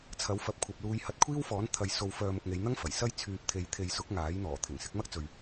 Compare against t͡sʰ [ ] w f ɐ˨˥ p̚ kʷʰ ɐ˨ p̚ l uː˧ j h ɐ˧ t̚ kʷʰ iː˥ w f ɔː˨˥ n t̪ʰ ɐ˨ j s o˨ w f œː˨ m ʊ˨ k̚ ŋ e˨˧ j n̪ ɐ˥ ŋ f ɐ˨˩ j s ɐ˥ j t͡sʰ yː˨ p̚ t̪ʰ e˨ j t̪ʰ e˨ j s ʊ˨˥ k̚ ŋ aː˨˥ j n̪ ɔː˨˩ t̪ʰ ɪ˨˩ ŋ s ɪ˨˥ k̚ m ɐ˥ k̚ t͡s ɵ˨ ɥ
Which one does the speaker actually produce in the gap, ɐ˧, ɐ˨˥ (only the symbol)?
ɐ˨˥